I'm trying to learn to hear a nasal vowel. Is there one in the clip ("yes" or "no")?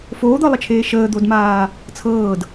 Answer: no